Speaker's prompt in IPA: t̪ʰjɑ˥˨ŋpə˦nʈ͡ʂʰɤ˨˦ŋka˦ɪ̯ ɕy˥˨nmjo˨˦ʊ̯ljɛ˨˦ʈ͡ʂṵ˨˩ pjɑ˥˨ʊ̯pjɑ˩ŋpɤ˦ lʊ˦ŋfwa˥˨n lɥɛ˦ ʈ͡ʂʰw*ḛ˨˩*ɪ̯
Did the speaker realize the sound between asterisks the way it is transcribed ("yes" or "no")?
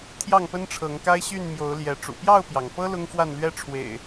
yes